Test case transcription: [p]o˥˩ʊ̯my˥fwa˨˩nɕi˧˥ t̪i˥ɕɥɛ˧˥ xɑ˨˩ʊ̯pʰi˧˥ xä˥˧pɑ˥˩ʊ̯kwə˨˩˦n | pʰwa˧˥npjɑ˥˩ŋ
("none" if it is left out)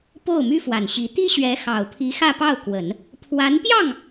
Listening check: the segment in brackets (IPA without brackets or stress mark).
p